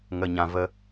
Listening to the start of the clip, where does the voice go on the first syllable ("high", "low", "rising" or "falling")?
high